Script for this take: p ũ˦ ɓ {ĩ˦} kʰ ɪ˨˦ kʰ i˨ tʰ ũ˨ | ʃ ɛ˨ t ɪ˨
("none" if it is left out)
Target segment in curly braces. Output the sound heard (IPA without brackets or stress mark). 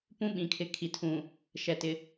ĩ˨